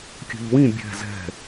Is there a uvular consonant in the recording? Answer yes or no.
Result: no